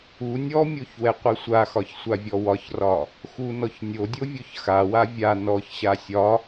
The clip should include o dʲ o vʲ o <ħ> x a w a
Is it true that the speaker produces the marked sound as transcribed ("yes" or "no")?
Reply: no